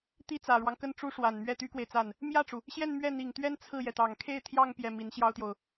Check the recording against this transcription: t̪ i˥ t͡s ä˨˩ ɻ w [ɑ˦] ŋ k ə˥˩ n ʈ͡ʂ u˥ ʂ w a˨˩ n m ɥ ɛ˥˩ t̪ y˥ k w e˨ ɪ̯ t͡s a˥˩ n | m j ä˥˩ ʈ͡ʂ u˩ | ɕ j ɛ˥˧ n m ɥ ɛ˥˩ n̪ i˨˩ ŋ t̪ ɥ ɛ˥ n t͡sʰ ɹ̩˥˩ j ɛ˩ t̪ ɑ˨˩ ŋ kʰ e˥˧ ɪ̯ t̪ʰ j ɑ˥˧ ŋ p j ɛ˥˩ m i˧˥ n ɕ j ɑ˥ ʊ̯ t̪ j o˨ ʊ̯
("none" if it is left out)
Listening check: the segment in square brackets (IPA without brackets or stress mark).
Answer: ɑ˦